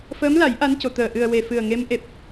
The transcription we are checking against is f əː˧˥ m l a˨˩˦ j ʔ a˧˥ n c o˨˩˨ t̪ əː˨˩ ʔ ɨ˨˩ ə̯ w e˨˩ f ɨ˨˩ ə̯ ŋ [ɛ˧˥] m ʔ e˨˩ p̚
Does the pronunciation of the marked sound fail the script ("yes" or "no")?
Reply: yes